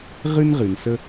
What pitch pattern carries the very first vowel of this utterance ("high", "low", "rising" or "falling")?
high